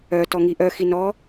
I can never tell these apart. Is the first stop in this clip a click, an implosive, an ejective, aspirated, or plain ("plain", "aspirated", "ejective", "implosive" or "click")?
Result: plain